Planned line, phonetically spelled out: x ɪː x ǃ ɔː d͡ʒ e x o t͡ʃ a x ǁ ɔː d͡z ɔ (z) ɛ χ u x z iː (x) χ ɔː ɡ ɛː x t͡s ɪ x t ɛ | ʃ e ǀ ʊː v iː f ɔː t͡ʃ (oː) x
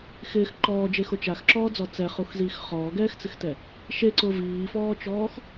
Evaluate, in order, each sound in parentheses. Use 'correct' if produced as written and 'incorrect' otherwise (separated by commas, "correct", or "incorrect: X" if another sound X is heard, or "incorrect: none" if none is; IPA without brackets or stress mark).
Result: incorrect: t͡s, correct, incorrect: ɔː